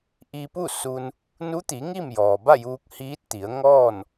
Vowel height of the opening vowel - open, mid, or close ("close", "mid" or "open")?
close